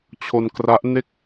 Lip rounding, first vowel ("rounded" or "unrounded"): rounded